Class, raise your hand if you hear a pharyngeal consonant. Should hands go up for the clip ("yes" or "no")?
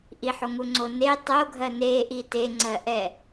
yes